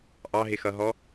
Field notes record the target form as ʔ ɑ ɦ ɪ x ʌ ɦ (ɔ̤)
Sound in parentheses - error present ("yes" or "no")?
yes